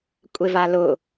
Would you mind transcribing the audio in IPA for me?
kʷʼevalʊ

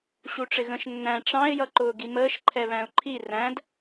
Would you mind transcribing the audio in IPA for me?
ɕuʈ͡ʂɪɣə̃ʃ nːæ̃ ʈ͡ʂɑ̃ɪ̯jʌǃʊː ɡiməːʃ ǃʰɛβæ̃ʊ̯ǃʰi ræ̃d

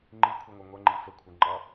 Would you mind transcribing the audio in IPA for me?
ŋ͡ǃi kʷʰiŋʷʌŋʷɛŋ͡ǃi fəkʷʰi ŋ͡ǃɑ

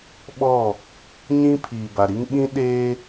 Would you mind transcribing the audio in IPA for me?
ɓɔ˦˨ | ɲĩ˦pʰiː˨ba˨ɾi˦ŋ ɓĩ˦ ɗeː˦

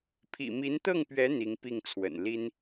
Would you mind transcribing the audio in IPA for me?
pʰḭ˨˩mi˧˥nt̪ɤ˥˩ŋpɥɛ˧˥ n̪i˧˥ŋ pi˥˩ŋt͡sʰwə̰˨˩n li˥n

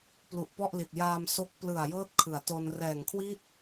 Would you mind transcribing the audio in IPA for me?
plu˨˩ʔpɔ˥˩ʔli˨˩t̚ jaː˧m so˦˥k̚plɯ˨˩a̯ jɤː˥˩t̚kʰɯ˩˦a̯to˧n rɛː˨˩ŋkʰwi˥˩t̚

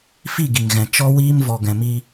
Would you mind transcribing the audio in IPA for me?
fi˦˨ɡi˨ŋɣɛ̃˨ t͡ʃɔ˧wiː˧mvɔ˨ ɡɛ̃˨mi˧

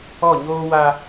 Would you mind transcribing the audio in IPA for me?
ɔ˦˨ɲoː˦wa˦

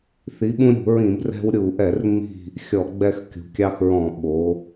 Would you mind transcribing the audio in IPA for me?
θi˨˥ɓũ˦ ɾʲṳ˧˩˧ ɹĩ˧˩˧b rɛ̤˦w ɾʲu˧˩˧ʔɛ˧˩˧r ŋ͡mi̤˦˨ | xʲɔ˧˩˧ɡ͡bɛ˦˨x kʲṳ˩˧kʲɑ˦xɹɔ̃˧˩˧ ɓo˩˧

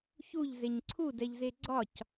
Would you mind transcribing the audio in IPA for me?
çuʎ zeɲǀʰu dɛʎzeɡ͡ǀɒc

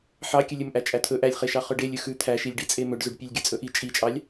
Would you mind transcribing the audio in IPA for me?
ħɑkʲɵlʲ ɵmʔæt͡ʃʼæt̪ʰɵ ʔælʲχeʃɑ χœɖelʲɵ xʉ t̪ʰæʃilʲɖit͡sʼe mɵɖzʉɖ pʲelʲɡet͡sʼɵʔi t͡ʃʼit͡ʃʼɑlʲ

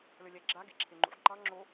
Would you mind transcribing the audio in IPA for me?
lʲɒlʲæɡ͡ǁa ɡḛǁʰeŋ͡ǃṵħǃɑ ŋ͡ǁo

